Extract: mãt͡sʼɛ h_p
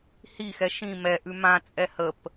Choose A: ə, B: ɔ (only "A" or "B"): A